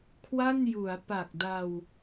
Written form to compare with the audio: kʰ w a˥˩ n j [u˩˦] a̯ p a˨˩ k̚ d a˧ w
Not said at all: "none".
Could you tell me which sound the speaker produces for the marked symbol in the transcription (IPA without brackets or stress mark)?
u˩˦